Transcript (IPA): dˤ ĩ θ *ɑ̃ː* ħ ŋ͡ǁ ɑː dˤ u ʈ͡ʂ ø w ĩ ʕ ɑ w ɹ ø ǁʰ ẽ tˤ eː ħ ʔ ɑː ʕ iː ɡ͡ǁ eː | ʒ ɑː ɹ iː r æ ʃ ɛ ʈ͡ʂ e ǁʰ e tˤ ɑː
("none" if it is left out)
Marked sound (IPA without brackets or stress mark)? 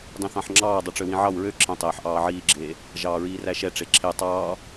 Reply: ɑ̃